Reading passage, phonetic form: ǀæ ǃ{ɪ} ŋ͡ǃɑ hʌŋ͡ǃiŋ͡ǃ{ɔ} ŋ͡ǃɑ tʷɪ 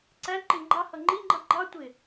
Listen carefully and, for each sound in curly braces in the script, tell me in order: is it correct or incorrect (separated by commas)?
correct, incorrect